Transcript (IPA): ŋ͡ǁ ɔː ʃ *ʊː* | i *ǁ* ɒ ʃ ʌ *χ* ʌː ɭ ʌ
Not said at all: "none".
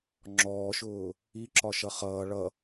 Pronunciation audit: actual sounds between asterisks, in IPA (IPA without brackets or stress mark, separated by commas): ʊː, ǁ, χ